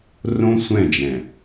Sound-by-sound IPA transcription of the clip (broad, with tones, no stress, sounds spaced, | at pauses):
r õ˦ sʷ ɛ̃˦˨ d͡ʒ ɛ̃˨